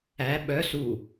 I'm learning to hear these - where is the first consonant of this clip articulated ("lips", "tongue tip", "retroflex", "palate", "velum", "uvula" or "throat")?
lips